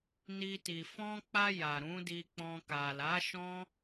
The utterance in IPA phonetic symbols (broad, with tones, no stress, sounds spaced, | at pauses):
n i˧ t i˨ f ɔ̃˧ k͡p a˧ j a˨ ɾ ũ˨˦ d i˧ k͡p ɔ̃˧ k a˨ l a˨˦ ʃ ɔ̃˦